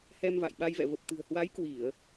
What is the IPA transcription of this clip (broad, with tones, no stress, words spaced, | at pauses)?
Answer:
hɛ˧mva̰˧˨jɓa˧jvɛ̰˧˨ və˨˩p̚t̪ɨ̤˨˩ə̯ hwa˨˦j kwi˧˩˨ə̯